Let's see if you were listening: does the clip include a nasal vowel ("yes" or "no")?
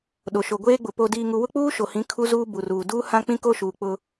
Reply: yes